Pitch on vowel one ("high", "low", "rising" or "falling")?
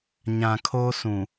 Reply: low